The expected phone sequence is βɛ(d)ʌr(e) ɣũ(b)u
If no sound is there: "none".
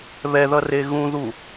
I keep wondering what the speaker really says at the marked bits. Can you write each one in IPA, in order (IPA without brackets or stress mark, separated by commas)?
ð, e, ð